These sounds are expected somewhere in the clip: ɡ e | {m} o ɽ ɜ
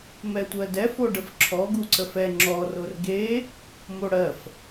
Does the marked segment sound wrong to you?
no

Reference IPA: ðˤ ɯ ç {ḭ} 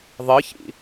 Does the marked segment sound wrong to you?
no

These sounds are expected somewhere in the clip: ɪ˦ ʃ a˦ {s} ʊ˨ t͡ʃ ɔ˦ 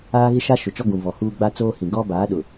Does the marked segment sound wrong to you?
yes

